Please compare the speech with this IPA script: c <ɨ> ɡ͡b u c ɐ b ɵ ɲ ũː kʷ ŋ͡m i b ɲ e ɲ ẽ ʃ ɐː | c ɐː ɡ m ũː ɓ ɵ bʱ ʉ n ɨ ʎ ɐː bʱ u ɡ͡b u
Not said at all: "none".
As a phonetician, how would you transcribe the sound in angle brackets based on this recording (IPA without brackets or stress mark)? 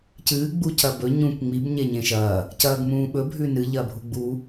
ɨː